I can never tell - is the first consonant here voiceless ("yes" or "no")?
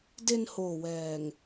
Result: no